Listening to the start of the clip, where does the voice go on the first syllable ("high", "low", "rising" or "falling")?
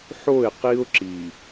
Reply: falling